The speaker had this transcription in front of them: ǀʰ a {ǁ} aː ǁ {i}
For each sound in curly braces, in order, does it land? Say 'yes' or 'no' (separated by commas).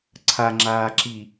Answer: no, yes